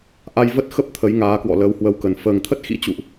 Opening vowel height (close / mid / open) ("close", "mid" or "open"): open